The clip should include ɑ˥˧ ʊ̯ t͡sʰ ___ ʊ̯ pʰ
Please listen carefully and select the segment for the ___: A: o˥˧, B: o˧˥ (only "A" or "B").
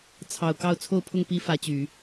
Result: A